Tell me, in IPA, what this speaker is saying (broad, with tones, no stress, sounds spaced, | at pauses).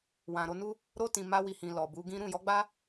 w ã˨ ɾ o˧ n u˦ | ɾ o˧ t ĩ˨ m a˧ w i˨ h ĩ˨ l ɔ˨ b u˨˦ ɡ ĩ˦ ɾ ũ˦˨ j ɔ˨˦ ɡ͡b a˦